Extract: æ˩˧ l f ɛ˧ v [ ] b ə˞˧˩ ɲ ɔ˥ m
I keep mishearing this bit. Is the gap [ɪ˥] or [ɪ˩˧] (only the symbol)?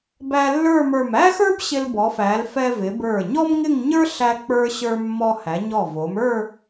ɪ˩˧